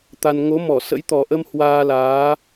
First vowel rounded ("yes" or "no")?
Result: no